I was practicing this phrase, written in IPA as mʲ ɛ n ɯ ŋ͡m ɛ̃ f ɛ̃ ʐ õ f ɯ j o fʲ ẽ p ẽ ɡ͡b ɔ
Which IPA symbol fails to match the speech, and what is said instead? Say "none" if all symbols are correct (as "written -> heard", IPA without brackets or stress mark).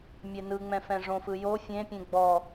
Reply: p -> pʲ